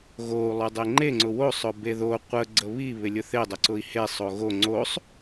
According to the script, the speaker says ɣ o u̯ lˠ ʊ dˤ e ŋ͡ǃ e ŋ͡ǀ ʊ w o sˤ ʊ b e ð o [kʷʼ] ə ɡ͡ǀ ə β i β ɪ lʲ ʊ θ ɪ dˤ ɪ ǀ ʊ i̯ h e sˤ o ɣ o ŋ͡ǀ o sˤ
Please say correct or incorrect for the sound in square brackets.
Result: incorrect